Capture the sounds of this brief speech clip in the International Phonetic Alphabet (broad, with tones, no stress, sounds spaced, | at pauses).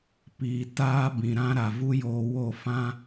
p iː˨ t aː˦ b ĩ˨ ɾ ã˦ ɾ a˨ v u˦ j oː˧ w o˦˨ f ã˦